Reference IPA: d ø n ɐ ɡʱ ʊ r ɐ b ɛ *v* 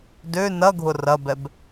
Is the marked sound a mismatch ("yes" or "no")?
yes